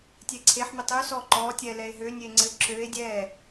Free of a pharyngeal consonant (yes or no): no